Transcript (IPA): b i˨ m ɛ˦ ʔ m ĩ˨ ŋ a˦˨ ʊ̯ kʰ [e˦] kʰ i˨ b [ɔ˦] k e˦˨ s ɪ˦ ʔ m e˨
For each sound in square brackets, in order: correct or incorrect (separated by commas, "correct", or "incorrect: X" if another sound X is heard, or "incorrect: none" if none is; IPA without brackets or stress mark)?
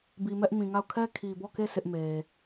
incorrect: ɛ˦, incorrect: ɔ˦˨